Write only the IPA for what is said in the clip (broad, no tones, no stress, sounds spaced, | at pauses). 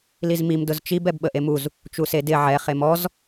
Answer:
l i z m i m d ʊ z t͡ʃ i b ɛ b ɓ ə ʔ e m u z | t͡ʃ u s e d ɪ ʕ ɛ χ e m ɔ z